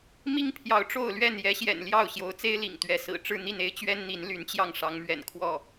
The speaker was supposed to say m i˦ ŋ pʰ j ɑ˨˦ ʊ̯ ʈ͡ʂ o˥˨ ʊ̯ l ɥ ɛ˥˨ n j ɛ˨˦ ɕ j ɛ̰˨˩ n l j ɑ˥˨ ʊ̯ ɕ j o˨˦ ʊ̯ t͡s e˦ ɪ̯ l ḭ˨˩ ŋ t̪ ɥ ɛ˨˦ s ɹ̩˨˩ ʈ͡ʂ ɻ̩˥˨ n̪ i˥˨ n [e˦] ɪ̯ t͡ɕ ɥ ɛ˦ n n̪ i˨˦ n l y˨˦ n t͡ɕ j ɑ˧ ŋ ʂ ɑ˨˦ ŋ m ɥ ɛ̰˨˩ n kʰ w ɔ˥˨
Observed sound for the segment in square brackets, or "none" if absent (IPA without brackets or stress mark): e˦